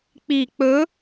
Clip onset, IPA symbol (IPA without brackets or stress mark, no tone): k͡p